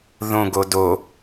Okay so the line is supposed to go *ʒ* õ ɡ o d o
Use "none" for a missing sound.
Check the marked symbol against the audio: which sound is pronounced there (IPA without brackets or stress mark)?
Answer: ð